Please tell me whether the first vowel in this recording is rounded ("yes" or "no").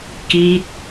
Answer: no